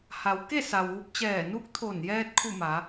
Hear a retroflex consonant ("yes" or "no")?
no